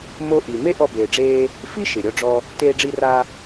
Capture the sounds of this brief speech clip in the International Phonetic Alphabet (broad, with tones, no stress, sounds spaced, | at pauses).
m o˧ ʔ i˩ m e˥ ʔ ɔ˧ b eː˩ ɖ͡ʐ eː˧ | f i˥ ʃ ɪ˩ ɾʲ ɔ˧ ɖ͡ʐ ɔ˧ | t eː˧ ɖ͡ʐ i˧ r a˧